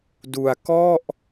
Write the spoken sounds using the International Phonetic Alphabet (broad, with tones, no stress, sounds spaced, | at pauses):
d u˧ a̯ k ɔ˥˩ ʔ